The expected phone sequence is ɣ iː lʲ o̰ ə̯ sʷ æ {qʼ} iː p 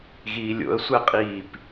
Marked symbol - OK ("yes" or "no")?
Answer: yes